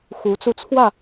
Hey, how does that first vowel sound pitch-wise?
rising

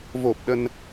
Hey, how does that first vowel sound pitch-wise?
low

